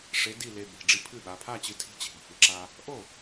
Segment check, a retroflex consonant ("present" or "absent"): present